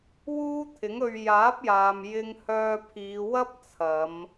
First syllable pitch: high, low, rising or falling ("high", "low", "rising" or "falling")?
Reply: high